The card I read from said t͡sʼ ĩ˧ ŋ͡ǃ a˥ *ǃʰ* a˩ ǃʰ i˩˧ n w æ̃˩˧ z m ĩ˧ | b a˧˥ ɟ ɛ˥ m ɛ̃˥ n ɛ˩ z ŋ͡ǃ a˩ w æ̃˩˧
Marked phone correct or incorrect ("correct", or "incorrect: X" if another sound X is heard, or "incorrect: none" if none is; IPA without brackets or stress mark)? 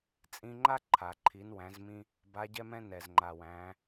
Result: correct